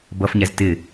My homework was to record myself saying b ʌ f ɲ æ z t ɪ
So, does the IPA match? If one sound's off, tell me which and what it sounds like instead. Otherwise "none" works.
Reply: none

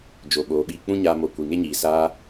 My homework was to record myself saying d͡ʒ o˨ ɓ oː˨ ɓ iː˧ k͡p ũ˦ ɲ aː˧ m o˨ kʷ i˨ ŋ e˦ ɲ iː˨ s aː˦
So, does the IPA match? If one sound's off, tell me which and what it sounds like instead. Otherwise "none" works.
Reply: none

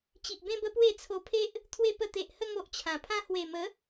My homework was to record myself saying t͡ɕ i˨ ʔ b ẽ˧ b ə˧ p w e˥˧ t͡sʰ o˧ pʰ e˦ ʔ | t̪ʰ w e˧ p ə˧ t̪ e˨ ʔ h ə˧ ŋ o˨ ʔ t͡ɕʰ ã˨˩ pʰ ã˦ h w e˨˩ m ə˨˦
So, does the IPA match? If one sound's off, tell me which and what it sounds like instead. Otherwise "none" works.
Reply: none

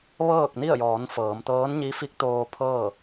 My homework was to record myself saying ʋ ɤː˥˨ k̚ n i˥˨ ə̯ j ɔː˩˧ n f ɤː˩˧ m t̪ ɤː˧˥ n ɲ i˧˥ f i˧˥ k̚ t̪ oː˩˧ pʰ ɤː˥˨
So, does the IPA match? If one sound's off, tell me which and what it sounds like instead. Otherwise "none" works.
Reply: oː˩˧ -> oː˧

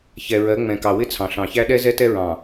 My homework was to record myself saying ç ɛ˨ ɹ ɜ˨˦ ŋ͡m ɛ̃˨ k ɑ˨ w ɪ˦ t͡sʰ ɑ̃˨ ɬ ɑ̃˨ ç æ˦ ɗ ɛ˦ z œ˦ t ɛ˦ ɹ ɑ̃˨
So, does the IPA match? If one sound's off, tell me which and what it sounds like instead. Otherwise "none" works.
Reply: œ˦ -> ɛ˦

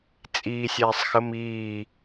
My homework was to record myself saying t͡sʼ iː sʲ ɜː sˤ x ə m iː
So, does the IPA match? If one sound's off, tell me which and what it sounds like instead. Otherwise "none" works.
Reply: ɜː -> ɛː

